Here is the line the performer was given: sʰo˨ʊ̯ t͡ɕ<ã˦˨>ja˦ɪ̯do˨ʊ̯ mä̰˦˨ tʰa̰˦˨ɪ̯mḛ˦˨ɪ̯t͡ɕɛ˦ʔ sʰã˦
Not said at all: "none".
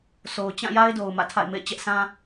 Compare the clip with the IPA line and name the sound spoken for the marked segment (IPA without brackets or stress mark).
ã˦˨